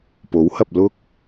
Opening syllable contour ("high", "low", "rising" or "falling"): rising